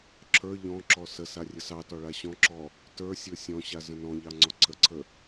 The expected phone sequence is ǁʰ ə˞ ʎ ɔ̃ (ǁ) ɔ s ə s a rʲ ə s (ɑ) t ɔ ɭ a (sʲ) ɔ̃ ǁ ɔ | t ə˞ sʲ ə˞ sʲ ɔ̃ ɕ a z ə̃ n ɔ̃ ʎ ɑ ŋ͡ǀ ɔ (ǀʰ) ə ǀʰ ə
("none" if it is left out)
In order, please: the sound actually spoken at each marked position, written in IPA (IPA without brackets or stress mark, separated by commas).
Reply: ǁ, ɑ, ɕ, ǀʰ